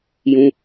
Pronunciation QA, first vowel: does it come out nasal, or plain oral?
nasal